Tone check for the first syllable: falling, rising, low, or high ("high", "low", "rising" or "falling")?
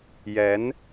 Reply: rising